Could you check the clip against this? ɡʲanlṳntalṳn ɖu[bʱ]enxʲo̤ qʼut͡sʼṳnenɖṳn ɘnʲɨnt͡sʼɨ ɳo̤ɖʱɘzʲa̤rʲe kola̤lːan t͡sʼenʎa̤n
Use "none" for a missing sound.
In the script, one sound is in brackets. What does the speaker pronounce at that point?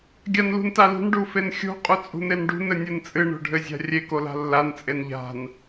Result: f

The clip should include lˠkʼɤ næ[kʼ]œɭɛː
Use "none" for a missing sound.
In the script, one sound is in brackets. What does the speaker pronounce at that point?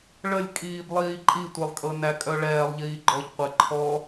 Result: kʼ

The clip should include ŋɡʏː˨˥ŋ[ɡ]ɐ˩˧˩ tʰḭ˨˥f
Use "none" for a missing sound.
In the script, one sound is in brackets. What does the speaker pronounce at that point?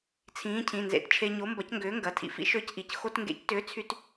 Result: ɡ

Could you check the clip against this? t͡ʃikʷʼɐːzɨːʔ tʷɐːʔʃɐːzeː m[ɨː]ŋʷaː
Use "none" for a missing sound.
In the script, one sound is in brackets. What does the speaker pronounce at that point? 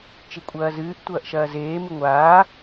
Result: ɨ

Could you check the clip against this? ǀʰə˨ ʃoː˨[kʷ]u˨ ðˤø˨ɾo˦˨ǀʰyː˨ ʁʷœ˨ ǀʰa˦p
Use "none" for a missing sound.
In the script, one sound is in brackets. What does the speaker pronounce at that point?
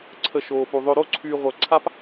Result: p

